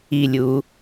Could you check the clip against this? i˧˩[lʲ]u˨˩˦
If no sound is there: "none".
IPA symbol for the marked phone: lʲ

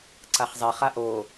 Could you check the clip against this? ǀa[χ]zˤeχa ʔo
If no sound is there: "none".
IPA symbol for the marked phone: χ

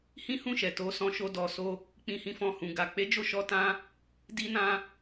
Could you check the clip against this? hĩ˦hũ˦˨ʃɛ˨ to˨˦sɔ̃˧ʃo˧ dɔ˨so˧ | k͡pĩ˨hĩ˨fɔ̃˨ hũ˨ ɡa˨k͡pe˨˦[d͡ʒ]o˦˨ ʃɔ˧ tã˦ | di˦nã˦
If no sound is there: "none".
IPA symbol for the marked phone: d͡ʒ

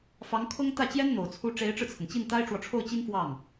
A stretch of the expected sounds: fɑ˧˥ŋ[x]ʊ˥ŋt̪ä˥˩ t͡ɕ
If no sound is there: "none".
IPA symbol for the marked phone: kʰ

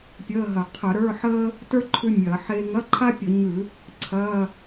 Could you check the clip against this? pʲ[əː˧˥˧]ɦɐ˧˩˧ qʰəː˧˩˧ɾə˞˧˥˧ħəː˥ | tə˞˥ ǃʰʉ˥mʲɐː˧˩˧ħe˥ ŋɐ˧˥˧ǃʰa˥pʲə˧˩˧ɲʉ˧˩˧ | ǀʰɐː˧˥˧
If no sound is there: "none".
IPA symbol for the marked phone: əː˧˥˧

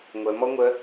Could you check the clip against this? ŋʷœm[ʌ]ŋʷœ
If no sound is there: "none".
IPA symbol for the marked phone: ɔ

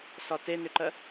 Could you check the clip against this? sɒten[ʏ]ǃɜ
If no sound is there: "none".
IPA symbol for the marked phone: ʏ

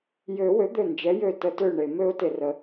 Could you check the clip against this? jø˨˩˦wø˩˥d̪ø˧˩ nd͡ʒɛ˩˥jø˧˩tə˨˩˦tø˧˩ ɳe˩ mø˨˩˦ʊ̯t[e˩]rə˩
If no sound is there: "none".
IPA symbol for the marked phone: e˩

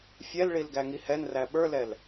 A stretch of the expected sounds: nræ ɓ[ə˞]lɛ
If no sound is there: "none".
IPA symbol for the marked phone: ə˞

